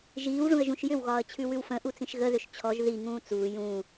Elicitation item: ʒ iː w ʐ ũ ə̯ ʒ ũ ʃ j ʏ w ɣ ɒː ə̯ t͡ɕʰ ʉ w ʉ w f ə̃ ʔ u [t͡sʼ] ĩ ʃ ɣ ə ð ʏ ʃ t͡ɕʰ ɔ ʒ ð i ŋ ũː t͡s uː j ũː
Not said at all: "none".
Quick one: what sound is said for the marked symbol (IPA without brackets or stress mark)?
t͡s